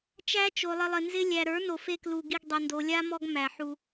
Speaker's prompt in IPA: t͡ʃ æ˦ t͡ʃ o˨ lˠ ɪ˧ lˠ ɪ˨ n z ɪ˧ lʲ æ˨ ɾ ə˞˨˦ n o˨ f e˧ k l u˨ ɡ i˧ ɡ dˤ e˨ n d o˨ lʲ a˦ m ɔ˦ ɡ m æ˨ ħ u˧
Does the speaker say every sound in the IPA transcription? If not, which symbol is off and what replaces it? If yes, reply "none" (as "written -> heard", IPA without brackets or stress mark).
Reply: none